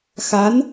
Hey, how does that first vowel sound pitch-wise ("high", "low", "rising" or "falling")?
rising